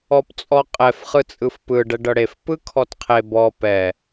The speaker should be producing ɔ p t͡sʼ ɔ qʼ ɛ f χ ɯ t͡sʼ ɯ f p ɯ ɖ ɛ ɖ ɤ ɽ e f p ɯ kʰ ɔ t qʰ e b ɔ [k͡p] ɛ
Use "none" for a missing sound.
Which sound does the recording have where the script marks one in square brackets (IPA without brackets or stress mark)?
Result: p